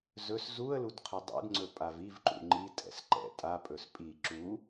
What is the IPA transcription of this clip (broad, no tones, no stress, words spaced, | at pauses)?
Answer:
zɵs zuə̯lud qʰɵdˤṵdŋ͡ǀɵ pʼavivǃṵ ŋ͡ǃitʼɛ̰s ǃɛ̰ tʼapʼɵs pʼi ǁu